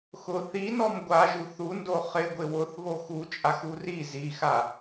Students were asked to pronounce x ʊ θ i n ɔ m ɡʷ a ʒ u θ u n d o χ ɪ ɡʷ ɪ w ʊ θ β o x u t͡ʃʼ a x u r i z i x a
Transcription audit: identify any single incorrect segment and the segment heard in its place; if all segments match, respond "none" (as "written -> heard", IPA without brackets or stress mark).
none